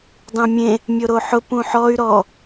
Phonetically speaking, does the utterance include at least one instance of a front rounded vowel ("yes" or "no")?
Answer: yes